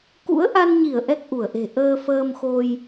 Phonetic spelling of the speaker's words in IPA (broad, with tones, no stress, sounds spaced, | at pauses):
k ṵ˧˥ ə̯ ʔ a˧ n ɲ i˧˩ ə̯ ʔ ɛ˦˥ k̚ ʔ u˧˩ ə̯ ʔ e̤˨˩ ʔ əː˧ f əː˧ m x o˧ j